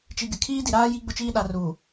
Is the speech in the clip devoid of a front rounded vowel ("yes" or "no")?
yes